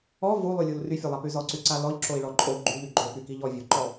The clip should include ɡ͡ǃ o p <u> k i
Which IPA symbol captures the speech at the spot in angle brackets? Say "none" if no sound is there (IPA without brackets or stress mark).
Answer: y